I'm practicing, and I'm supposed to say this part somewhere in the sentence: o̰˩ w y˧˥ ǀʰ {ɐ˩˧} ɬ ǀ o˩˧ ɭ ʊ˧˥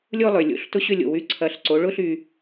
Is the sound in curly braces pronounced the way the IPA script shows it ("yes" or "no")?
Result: yes